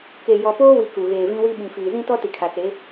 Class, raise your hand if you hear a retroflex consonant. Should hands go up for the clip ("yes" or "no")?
no